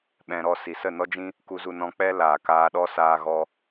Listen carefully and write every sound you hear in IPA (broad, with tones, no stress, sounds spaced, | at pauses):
ɓ ɛ̃˧ ɾ ɔ˦ s i˨ s ə˦˨ n ɔ˦ d͡ʒ ĩ˦ | k u˧ z u˧ n ɔ̃˧ k͡p ɛ˦ l aː˨ k aː˧ ɗ ɔ˦ s aː˧ ɣ ɔ˧